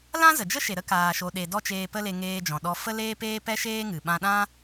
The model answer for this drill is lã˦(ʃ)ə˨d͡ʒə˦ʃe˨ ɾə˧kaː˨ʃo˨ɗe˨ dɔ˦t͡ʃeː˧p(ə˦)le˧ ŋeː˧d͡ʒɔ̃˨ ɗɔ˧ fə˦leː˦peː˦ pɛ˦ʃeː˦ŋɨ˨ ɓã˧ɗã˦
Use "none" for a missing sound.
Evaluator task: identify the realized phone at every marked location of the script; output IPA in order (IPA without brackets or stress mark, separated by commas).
z, ə˦